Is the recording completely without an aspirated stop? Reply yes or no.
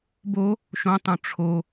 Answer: no